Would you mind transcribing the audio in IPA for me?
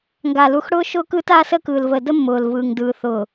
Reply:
ŋ ɡ a˨ l u˨ x ɽ ʊː˦ ʃ ʊː˦ k ɯː˦ t aː˦ s əː˦ k ɯː˨ l v əː˨ d ə˦ mː ʊː˨ l v ɯː˨ ŋ d ɯː˨ θ ʊː˨

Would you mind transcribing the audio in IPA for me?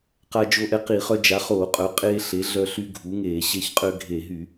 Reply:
q a˦ d͡ʒ o˦ ʔ ɛ˦ q i˧˩˧ χ œ˦ d͡ʒ a˩˥ χ oː˧˩˧ qʼ œ˩˥ qʼ eː˦ ɬ e˩˥ ɮ œ˦ ɬ y˦ ɡʱ u˩˥ ŋ eː˧˩˧ ɕ e˦ ç qʼ ø˦ ɡʱ e˧˩˧ ɦ y˧˩˧

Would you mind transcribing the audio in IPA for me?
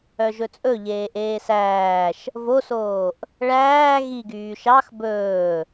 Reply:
œ ʒ ɵ t͡sʼ ɵ ʎ eː ʔ eː s æː ʃ | v o s oː ʔ | ɭ æː ɣ i ɡ yː ʃ ɑ x b ɵː

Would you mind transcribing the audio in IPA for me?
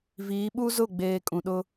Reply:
v iː˨˦ ɓ u˦ z ʊ˦˨ ɡ͡b eː˨ kʼ ũ˨ ɗ ʊ˦

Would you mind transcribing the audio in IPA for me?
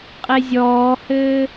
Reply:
qʼ e zʲ ɔː h ɘː

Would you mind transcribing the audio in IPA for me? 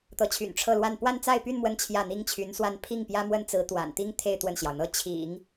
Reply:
t̪ ɤ˧˥ t͡ɕʰ y̰˨˩ n ʈ͡ʂʰ ɤ˥˧ l w a˥˧ n p w a˥˧ n t͡s a˥˧ ɪ̯ p y˥˧ n m w ə˥˧ n t͡ɕʰ j ä˥˩ n̪ i˥ ŋ t͡ɕʰ y˧˥ n s w a˥˧ n pʰ i˥˩ ŋ p j ä˥ m w ə˥ n t͡s ɹ̩˧˥ t̪ w a̰˨˩ n t̪ i˥ ŋ t̪ʰ e˥˧ ɪ̯ t̪ w ə˥˩ n ɕ j ɑ˩ ʊ̯ n̪ ɤ˥ t͡ɕʰ ḭ˨˩˦ ŋ

